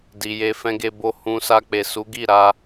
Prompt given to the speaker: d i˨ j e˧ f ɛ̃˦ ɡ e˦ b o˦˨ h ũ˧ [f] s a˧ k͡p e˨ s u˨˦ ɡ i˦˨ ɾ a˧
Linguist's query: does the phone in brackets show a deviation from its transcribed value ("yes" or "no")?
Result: yes